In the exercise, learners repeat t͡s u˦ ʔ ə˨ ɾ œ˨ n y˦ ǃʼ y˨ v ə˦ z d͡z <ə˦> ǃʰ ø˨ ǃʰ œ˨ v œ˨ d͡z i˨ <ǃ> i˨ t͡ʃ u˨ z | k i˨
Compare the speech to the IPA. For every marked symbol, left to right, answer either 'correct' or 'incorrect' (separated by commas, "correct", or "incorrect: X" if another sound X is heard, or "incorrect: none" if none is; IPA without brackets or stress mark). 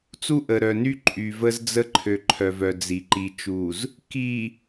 correct, correct